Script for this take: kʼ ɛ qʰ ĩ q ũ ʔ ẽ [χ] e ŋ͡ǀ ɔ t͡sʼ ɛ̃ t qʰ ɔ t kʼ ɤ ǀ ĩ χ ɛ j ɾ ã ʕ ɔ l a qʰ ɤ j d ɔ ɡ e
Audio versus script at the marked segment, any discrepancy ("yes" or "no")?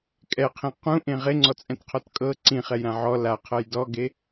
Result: yes